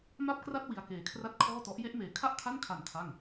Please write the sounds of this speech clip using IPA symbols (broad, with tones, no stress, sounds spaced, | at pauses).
m a˥˩ p̚ k r a˥˩ t̚ w i˧ a̯ k eː˨˩ kʰ r a˥˩ t̚ kʰ ɔː˥˩ t ɔ˦˥ ʔ j e˥˩ ʔ m eː˨˩ kʰ a˥˩ ʔ kʰ a˥˩ n kʰ a˨˩ n kʰ a˥˩ ŋ